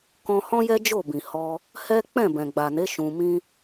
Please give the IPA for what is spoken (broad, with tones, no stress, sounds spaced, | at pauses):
k ɔ̃˧ h ɔ̃˦ j ɛ˦ d͡ʒ o˦˨ b ĩ˨ h ɔ˧ | h ɛ˦ k͡p ɛ̃˦˨ b ɛ̃˨ ɡ͡b a˨ n e˨˦ ʃ ũ˧ m ĩ˦